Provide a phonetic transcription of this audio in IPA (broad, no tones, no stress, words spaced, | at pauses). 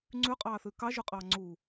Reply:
ŋ͡ǀʉqʼɑːθʉ kɑʒʉqʼɑː ŋ͡ǀu